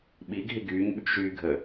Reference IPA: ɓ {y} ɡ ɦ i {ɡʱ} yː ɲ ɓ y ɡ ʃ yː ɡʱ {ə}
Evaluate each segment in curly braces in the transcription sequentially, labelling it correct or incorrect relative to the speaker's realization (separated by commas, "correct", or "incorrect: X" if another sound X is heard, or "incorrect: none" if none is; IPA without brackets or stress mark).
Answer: incorrect: i, incorrect: ɡ, correct